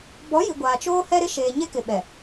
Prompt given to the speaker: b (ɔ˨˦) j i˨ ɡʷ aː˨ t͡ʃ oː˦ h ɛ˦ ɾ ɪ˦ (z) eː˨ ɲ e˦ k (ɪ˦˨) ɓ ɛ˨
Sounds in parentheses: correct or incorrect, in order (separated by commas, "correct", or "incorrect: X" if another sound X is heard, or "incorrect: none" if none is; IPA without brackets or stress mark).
correct, incorrect: ʃ, incorrect: ɪ˨